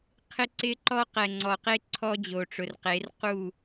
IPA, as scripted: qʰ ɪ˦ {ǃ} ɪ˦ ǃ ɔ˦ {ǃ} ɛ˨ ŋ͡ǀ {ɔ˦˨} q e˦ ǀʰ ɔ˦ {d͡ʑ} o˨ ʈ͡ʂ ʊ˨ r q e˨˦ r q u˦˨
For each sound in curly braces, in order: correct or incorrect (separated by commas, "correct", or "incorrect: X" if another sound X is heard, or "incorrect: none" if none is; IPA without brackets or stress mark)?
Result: incorrect: ǀ, incorrect: q, incorrect: ɔ˨, correct